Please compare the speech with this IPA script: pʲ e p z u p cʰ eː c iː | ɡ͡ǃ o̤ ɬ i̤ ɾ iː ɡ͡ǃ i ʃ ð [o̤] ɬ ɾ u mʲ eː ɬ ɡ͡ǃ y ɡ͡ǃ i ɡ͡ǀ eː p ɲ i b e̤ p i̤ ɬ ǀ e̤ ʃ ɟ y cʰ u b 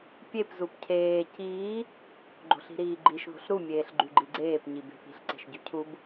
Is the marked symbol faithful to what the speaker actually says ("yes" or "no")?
yes